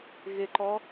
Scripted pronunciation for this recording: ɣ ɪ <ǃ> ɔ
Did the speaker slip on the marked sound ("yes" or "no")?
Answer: no